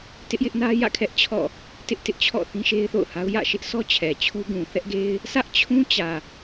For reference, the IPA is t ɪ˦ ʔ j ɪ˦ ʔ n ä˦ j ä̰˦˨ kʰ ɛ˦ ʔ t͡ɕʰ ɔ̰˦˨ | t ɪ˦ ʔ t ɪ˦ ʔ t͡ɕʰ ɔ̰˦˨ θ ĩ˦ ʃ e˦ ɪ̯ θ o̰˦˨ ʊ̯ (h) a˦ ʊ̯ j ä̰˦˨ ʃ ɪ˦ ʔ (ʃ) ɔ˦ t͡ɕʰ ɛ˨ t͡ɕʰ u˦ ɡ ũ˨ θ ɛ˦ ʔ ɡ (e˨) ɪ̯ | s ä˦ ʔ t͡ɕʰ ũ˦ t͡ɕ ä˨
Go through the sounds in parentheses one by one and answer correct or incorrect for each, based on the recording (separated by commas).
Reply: correct, incorrect, incorrect